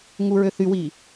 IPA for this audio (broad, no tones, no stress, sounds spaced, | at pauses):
ŋ u ɹ ø θ y w i